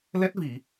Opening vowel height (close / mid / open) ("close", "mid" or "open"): mid